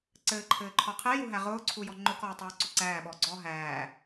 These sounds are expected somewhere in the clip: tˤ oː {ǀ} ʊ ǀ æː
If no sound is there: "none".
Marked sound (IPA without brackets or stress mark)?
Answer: ǀ